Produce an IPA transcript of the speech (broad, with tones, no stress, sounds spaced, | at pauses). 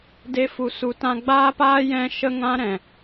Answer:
d e˦ f u˧ s u˧ t ã˦ ɡ͡b aː˦ p aː˦ j ɛ̃˦ ʃ ə˦ ŋ ã˦ ɾ ɛ̃˨